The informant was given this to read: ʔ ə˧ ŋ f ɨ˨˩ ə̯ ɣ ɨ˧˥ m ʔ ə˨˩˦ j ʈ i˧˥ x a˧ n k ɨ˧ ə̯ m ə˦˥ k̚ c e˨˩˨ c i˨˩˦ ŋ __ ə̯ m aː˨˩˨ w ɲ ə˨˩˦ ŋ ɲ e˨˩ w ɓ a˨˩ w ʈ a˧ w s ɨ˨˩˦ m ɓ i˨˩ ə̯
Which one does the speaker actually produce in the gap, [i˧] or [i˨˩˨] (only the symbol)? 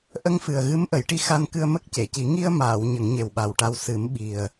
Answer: i˧